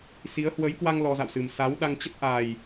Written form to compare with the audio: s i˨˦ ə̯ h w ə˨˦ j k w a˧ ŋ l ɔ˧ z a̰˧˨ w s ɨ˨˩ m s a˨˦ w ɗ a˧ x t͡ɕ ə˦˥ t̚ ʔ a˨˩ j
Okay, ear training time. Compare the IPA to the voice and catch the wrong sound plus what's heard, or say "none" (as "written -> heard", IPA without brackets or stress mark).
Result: x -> ŋ